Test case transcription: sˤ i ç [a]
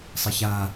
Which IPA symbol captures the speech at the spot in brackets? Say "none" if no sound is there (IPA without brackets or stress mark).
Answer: a